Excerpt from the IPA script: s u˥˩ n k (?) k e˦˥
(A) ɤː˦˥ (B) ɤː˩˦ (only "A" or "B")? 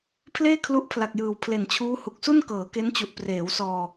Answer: B